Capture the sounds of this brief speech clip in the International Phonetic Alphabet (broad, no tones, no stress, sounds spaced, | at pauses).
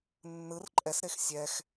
nː ɯ r ǃʼ ɛ s ɾ e x sʲ ɛ x